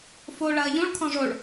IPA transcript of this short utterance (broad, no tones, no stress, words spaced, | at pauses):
fo ɭɐːʎũɭ kʰɔ̃ʐoɭ